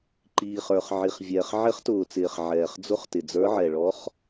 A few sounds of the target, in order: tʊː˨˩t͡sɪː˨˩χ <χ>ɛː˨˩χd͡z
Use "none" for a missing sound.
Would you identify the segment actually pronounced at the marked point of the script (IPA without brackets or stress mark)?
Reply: ʕ